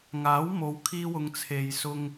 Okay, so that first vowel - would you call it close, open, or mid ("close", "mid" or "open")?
open